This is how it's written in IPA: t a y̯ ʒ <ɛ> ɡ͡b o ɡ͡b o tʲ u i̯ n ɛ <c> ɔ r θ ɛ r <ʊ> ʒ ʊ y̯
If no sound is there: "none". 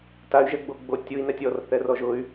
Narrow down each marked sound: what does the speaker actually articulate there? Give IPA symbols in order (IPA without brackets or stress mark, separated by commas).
ɛ, tʲ, ɔ